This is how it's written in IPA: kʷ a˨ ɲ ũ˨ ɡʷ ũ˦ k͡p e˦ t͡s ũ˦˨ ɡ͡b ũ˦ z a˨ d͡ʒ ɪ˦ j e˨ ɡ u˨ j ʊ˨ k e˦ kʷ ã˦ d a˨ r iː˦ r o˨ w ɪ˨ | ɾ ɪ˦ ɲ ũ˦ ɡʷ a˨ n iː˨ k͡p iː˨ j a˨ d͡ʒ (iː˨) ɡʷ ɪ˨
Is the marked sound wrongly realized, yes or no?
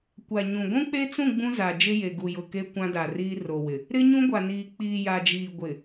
no